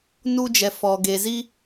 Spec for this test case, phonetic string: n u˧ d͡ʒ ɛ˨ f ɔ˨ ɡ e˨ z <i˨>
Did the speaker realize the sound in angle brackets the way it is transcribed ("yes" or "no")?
no